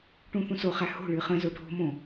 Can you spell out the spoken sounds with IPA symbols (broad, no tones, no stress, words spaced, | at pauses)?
ʈũθũsoχæ ho̤ɭɨ χə̃zo ɖʱo̤mõ